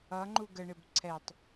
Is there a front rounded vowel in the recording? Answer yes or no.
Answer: no